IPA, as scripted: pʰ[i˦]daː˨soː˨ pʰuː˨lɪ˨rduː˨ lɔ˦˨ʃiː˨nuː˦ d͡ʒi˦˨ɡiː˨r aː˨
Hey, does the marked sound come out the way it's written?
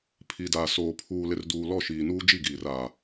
no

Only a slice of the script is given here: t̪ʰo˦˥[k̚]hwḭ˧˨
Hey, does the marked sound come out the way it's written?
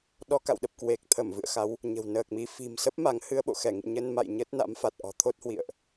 no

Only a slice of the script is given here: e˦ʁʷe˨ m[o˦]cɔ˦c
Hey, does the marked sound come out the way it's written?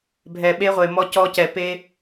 no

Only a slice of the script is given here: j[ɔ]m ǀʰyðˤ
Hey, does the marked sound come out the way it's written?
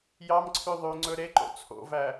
no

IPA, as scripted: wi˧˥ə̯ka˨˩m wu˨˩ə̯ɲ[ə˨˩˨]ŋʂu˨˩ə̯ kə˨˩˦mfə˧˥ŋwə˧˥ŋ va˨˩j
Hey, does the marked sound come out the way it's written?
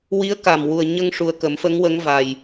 no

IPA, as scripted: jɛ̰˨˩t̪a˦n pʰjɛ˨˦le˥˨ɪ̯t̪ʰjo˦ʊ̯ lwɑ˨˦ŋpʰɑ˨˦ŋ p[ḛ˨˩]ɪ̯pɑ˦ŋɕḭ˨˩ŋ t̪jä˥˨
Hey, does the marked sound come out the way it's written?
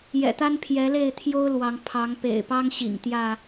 yes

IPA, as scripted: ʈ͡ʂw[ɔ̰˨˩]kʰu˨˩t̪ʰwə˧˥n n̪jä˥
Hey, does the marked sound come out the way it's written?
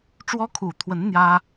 no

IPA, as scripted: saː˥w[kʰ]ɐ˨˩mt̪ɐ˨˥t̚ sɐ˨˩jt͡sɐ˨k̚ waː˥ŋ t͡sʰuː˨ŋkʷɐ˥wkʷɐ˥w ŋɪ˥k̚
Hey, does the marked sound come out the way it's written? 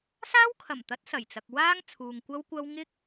yes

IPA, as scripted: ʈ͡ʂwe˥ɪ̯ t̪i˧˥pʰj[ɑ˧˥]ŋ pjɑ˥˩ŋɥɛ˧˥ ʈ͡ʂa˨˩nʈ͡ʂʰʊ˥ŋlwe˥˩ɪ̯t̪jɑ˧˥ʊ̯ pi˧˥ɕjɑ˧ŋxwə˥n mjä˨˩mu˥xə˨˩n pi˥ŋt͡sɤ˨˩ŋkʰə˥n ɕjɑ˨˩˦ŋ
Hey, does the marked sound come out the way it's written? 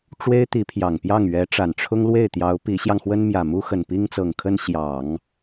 no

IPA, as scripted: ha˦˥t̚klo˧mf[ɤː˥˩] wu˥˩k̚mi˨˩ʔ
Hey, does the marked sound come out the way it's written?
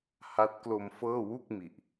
yes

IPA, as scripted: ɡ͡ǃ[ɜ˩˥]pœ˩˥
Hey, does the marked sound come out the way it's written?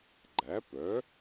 no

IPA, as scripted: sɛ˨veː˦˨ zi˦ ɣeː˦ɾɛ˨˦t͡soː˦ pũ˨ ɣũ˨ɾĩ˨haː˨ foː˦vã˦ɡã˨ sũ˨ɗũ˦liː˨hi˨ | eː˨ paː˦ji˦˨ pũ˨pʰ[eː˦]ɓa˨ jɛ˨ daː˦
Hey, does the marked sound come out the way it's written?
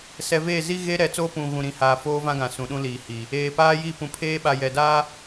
yes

